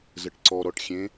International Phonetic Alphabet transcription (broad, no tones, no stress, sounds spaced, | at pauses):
z ə ʈ ǀ ɔ ɾ ɔ ʈ xʲ ẽ